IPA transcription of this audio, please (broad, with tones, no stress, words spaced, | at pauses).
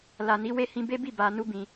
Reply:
la˨ni˨˦ we˦˨hĩ˧ be˦bi˦˨ ba˨ nu˧bĩ˨